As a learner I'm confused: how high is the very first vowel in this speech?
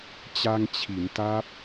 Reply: low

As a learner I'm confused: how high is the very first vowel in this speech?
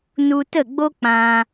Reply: high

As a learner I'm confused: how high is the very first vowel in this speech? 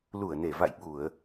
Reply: high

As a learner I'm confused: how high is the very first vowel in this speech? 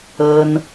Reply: mid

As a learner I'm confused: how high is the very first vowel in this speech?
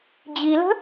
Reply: high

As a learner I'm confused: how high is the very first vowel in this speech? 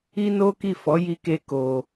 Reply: high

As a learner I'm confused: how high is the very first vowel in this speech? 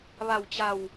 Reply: low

